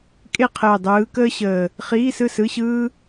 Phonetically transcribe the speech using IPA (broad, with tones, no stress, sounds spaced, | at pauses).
kʼ e˥˨ qʰ əː˨˩ dˤ ɯː˨˦ k əː˥ ɕ əː˨˩ | χ iː˧˥˧ s ɯ˥˨ s ɯ˧˥˧ ɕ ɯː˥